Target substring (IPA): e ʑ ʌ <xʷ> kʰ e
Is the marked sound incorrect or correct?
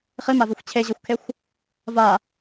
correct